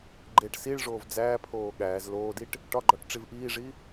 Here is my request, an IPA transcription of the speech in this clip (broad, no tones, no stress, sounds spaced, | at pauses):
ɡ͡ǃ e ʈ s i ɭ ʐ oː v d͡z æː pʰ oː ɠ æː z l oː d i ʈ | ʈ ɒ ɡ͡ǃ ɒ ʈ ʈ͡ʂ i v ʔ iː ʐ i